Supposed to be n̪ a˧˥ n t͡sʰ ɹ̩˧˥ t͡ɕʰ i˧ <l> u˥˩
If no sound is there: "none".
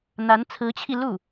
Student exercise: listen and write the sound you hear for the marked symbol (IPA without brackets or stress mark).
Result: l